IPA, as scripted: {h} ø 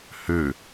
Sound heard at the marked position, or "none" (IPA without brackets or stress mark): h